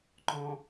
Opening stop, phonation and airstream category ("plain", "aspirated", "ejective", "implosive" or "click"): click